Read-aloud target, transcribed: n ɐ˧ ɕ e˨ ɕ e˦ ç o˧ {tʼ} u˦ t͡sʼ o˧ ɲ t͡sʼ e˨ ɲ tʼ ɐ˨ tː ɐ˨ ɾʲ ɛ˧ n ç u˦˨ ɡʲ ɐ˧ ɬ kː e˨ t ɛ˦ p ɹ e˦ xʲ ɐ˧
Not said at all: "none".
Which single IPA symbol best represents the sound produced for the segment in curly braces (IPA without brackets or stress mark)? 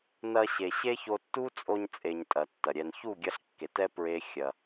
tː